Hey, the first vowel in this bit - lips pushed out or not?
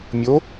yes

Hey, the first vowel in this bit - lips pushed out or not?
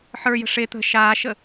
no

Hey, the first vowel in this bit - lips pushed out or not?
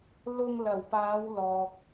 yes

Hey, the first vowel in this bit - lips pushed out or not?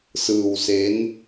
no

